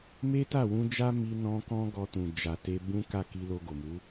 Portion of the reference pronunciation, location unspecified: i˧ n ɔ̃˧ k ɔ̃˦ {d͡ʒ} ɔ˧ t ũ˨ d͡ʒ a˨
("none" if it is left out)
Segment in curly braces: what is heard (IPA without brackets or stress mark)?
ɡ